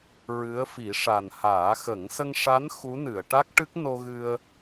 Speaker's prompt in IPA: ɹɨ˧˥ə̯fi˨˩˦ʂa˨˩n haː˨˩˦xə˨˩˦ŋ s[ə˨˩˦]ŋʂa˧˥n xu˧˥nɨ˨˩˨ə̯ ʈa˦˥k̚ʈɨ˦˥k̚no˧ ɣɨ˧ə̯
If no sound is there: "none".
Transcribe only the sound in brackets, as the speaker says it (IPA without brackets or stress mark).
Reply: ə˧